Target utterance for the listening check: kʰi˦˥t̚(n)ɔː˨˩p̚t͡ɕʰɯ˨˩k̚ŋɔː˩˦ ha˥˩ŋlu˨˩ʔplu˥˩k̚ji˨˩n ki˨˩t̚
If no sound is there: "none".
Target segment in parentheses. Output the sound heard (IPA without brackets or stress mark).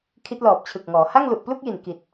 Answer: l